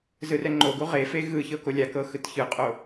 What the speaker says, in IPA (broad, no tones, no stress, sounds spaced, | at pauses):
z ɯ r ɛ ŋ͡ǃ o ɡ u ʁ e f e ɣ ɯ ç ɤ k o lʲ a k ɤ x ɯ t ç ɯ qʼ o